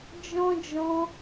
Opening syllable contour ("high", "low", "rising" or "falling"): high